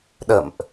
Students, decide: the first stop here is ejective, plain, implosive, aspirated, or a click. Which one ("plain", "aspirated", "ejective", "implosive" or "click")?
implosive